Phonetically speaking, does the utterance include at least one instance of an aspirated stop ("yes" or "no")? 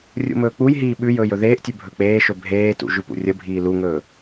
no